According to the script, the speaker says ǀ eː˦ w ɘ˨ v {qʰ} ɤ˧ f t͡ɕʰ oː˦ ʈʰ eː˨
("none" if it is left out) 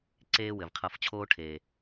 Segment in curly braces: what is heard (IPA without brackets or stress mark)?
qʰ